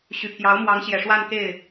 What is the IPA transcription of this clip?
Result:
ɕ y˨˩ pʰ j ɑ˧˥ ʊ̯ m w ɑ˧˥ ŋ ɕ j ɛ˨˩ ʂ w a˥˧ n k e˥˩ ɪ̯

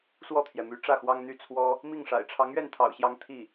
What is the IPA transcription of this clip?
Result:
s w ɔ˥˩ t̪ʰ j ɛ˩ m y˧˥ ʈ͡ʂ ä˥˩ x w ɑ˥ ŋ n̪ y˥˩ t͡sʰ w ɔ˥ | m i˥˩ ŋ ʂ a̰˨˩ ɪ̯ ʈ͡ʂʰ ɑ˧˥ ŋ ɥ ɛ˥˩ n t̪ʰ ɑ̰˨˩ ʊ̯ ɕ j ɑ˥ ŋ t̪ʰ i˥˩

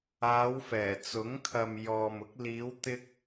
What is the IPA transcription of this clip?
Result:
aː˨˧ w f ɛː˨˩ t͡s ʊ˨˥ ŋ kʰ ɐ˨ m j ɔː˨ m ʊ˨˥ k̚ l iː˨˧ w t̪ ɪ˧ k̚

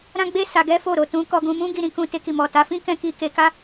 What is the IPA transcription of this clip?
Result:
ɾ ã˦ ɡ͡b e˦ s a˧ ɡ ɛ˦ f o˦˨ ɾ o˨ t ũ˨˦ k ɔ˧ ɡ ũ˧ m ũ˦ ɡ i˧ ɾ ĩ˧ k ũ˧ t e˧ k i˨ m ɔ˨ t a˨˦ f ĩ˦ k ɛ̃˧ k i˧ k e˧ k a˦

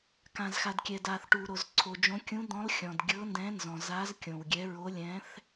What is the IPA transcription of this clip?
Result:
k ã˩ z x a˩ d kʲ ɛ˩ d a˩ θ ʈ u˩ ɾ o˩ z ǀʰ o˩ d͡ʒ õ˨˥ kʲ ũ˨˥ d̪ ɔ̃˨˥ lˠ xʲ ɔ̃˩ d ɡʲ ɤ˨˥ n d ɛ̃˨˥ n z ɔ̃˩ z a˨˥ z kʲ õ˩ w ɡʲ ɛ˨˥ ɹ o˨˥ lʲ ɛ̃˨˥ θ

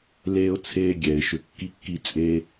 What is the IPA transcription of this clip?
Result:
l eː˦ ʊ̯ t͡sʰ eː˦ ɡʲ ɛ˩ ɪ̯ ʃ ʏ˨ kː i˥ kː i˦ t͡sʼ eː˦

